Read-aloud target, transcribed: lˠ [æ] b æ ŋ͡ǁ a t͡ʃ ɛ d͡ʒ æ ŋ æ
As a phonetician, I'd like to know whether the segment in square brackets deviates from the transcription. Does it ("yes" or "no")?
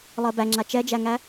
yes